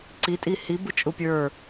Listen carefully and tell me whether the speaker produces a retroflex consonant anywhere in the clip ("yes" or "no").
no